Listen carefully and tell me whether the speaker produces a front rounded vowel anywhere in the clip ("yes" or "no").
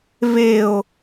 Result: no